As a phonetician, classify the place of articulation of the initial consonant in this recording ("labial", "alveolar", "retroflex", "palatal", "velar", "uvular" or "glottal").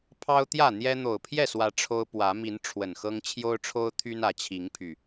labial